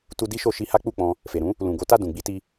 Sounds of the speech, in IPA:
t u˧ d i˦ ʃ o˧ ʃ i˧ h a˦ k͡p u˦˨ k͡p ɔ̃˧ | f e˨ ɾ ũ˨˦ | l ũ˨ ɡ o˨˦ t a˦˨ d ũ˨ ɡ͡b i˧ t i˧

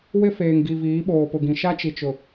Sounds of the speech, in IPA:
w ɪ˦ f eː˨ ŋ ɡ i˨ v iː˨˦ ɓ oː˨ p ʊ˨ ɡ ĩ˨ ʃ a˦ t͡ʃ i˨ t͡ʃ ʊ˨

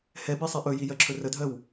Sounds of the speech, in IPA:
h ɛ b i sˤ e ʔ ɵ j i j ɜ ǁʰ ɵ r ə dʱ ɜ w

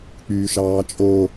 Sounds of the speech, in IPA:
k͡p yː ʃ ɑː t͡ʃʼ o

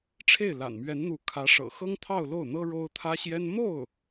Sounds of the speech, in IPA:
ʈ͡ʂʰ e˥˩ ɪ̯ l a̰˨˩ n m ɥ ɛ˧˥ n n̪ u˧˥ kʰ ä˧˥ ʂ ɤ̰˨˩ x ɤ˥ ŋ t̪ʰ ɑ˥˧ ʊ̯ l o˥˩ ʊ̯ n̪ ɤ˥ ɻ o˥ ʊ̯ t̪ʰ ä˥ ɕ j ɛ˥ n m o˥˩ ʊ̯

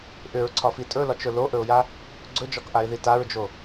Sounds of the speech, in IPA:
ʔ ʏ ɹ ǀʰ ɒ f i tʼ ɵ l ɒ t͡ʃ ɵ l o ʔ ɵ ʊ̯ j a | ɡ͡ǀ ɵ d͡ʒ ɒ k ʔ a ɪ̯ ð i t a ɹ d͡ʒ o

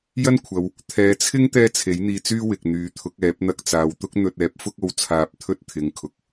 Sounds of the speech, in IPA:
j ɐ˥ n kʷʰ ɐ˨˧ w | t̪ʰ ɛː˨˧ t͡sʰ ɪ˥ ŋ t̪ ɛː˥ t͡sʰ e˨˥ j n̪ iː˧ t͡s yː˥ w ɪ˨ k̚ n̪ yː˨˧ t̪ʰ ʊ˨˥ k̚ ɛː˨˥ p̚ n̪ ɐ˧ k̚ t͡s aː˨ w t̪ ʊ˥ k̚ n̪ ɵ˧ t̚ ɛː˨˥ p̚ f ʊ˥ k̚ o˧ w t͡sʰ aː˧ p̚ t̪ʰ ɵ˥ t̚ t̪ʰ ɪ˨˧ ŋ kʰ ʊ˨ k̚

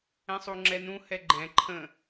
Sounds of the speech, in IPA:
ɛ̃ sˤ u ŋ͡ǁ ɛ n ũ h ɛ ɡ͡ǃ ɛ̃ ǃʰ ə̃

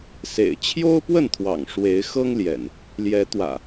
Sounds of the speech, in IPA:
s ḛ˨˩ ɪ̯ t͡ɕʰ j o˦ ʊ̯ p w ə˥˨ n t̪ʰ w ɑ̰˨˩ ŋ ʂ w e˨˦ ɪ̯ x ɤ˦ ŋ l j ɛ̰˨˩ n | l j ɛ˨˦ t̪ w ä̰˨˩

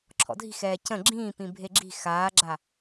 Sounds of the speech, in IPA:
ǁʰ ɔ̰ dʱ i̤ x ɛː c ə̃ ɡ͡ǁ ĩː p ĩ bʱ e ɡ͡ǁ i̤ x aː ɡ͡ǁ a

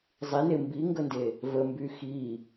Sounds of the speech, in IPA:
zˤ i n e m b i ŋ ɡ ə n d e | v ə m b y x i

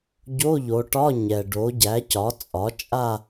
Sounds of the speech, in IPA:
ɟ o˧˥˧ ʎ o˩˧ ʈ ɒ˧˥˧ ɲ ɛ˩ ɖ o˩˥ ɟ æ˩˥ c ɒ˩˥ t͡sʼ ɒ˩˥ t͡ʃʼ a˥˧

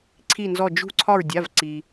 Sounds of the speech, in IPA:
ǀʰ i˧˩ n z ɔ˧˩ d͡ʒ ṳ˧˩ ǀʰ ɒ˧˩ ɹ dʲ a˩˧˩ v ǀ i˩

